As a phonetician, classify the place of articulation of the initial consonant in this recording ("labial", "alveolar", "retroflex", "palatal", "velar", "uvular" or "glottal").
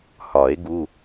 glottal